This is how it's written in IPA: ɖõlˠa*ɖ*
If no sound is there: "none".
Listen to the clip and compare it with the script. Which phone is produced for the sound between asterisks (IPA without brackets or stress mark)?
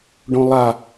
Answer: none